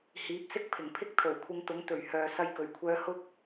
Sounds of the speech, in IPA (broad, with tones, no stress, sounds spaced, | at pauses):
h iː˨˥ p̚ s ɪ˥ k̚ pʰ ɪ˨˩ ŋ pʰ ɪ˥ k̚ t̪ʰ o˨˩ w kʷʰ ɪ˧ ŋ t̪ ʊ˨˥ ŋ t̪ ɵ˨˩ ɥ h œː˨ s ɐ˧ j k ɵ˨˩ ɥ kʷʰ œː˧ h ʊ˥ k̚